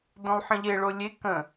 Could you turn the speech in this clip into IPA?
d õ lˠ ħ ə̃ ʎ e ɭ o lʲ e k ə̃

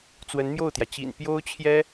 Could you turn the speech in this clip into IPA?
t͡s w ə˧˥ n m j o˥˩ ʊ̯ t̪ j ä˩ t͡ɕ ḭ˨˩ n p j o˥ ʊ̯ t͡ɕʰ j ɛ˥

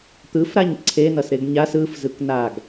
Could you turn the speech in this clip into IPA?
t̪ ɯ f ɾ a ɲ ǀʰ e n ʌ s ɾ e ɡ ɲ a s ɯ f z ɯ k n a ɡ

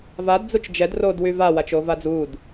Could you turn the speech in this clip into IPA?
v a d d͡z u t͡ʃ d͡ʒ ɛ d r o d w y v a w a t͡ʃ o v a d͡z uː d

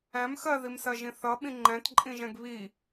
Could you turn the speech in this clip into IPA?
æ̃ m x ɜ ð i m s ɜ ʒ ĩ θ ʌ ɓ ĩ ŋ͡ǃ ɛ̃ t ǃʼ ĩ ʒ ɛ̃ ɡ β i

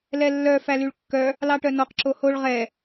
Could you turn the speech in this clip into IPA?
l ɛ lː œ f æ l y ɭ kː œ | l ɑ ʈ œ n ɔ q ǁ o h o ɭ ʁ ɛ

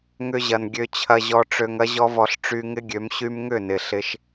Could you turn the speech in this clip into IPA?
ŋ ʏ˧ ʑ ɐ˨ n ɡʲ ø˧ t͡ɕʰ ɐ˧ ʑ ɔ˧ ʈ͡ʂ ø˧ ŋ ɐ˦ ʑ ɔ˦ v ɔ˧ ɬ ʈ͡ʂ y˧ ŋ ɪ˦ ɡʲ ø˨˦ m ɕ y˧ m ŋ ʏ˦˨ n ɪ˨ ɬ ɪ˦ ʃ

